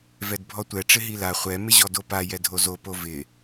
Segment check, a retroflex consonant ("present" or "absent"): present